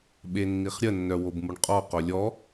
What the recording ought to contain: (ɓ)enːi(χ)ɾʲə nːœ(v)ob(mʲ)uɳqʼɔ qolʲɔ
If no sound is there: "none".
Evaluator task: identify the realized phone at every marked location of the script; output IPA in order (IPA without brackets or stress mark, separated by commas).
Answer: ɓ, χ, w, m